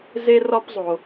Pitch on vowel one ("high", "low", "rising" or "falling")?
high